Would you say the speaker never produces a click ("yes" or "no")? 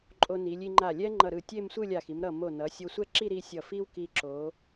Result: no